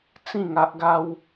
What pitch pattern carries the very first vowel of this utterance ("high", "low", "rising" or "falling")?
falling